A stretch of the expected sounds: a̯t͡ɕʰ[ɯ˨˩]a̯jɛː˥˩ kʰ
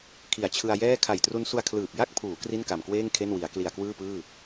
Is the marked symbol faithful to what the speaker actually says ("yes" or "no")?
no